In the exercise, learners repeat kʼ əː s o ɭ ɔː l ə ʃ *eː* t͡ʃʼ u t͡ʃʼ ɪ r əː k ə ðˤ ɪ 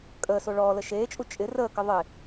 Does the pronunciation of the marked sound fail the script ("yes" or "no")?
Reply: no